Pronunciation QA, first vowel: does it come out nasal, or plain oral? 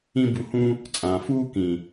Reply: nasal